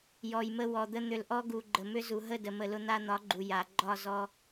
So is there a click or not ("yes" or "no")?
yes